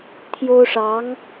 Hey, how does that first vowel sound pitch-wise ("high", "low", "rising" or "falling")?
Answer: high